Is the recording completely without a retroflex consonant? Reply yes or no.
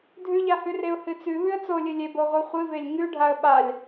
no